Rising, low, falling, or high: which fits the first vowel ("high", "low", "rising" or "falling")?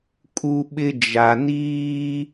high